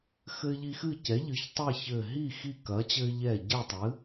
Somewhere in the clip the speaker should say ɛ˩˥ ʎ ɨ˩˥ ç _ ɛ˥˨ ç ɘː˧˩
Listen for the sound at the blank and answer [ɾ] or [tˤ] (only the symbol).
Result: tˤ